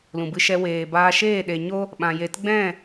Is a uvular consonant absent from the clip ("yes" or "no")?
yes